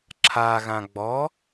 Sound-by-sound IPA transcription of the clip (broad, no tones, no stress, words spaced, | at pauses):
ǁʰaɣã ɡ͡bɔ